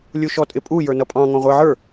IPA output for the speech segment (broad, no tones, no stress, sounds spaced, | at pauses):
lʲ u ʃ ɔ tʼ ɪ pʼ u j ə˞ n ʌ pʼ ɑ̃ ŋ ɔ̃ ʁʷ ə˞ ʕ ə˞